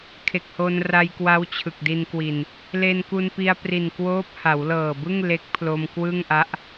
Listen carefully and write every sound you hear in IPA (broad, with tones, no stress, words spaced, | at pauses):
kʰe˨˩k̚ho˧nra˧jkwa˦˥w t͡ɕʰɯ˨˩k̚di˧nkwi˨˩n | le˧nku˧npi˧a̯ pri˨˩nkwoː˦˥p̚ ha˩˦wlɤː˨˩bɯ˥˩ŋ le˦˥k̚pʰlo˧m kwɯ˥˩ŋʔa˦˥ʔ